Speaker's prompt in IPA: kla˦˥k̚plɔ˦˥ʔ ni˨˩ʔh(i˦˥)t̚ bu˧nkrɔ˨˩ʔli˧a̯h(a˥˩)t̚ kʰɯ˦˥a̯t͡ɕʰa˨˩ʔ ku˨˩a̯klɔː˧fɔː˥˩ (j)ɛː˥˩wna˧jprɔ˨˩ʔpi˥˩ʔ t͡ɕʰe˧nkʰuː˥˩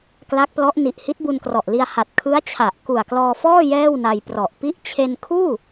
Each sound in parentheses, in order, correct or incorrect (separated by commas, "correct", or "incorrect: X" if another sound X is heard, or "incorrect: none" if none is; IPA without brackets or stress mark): correct, incorrect: a˨˩, correct